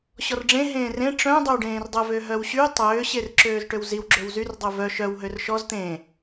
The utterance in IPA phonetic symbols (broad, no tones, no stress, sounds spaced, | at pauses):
ɕ ɔ r ɖ͡ʐ ẽ ɦ ẽː r ẽ ʈ͡ʂ œ̃ dˤ ø w ɖ ẽː r dˤ ə v ø ɦ œ w ɕ y tˤ øː ɕ e r ǁ øː z ʈ ø w z i w ɡ͡ǁ ø w z y r dˤ ø v œ ʃ œ w ɦ ø r ʃ ɔ z t̪ ẽː